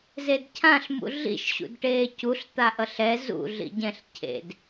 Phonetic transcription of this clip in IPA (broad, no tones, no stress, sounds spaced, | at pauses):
z e d cʰ ã ɬ m ṵ ɮ ḭ ʃ ɕ ṵ d ʈ eː c u ɬ t̪ a ʔ ʌ ɬ ɛ z ṵ ɮ ḭ ɟ ɛ̃ ɬ cʰ ḛ d